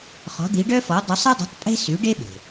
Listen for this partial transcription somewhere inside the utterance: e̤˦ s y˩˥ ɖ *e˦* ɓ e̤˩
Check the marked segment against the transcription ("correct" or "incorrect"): correct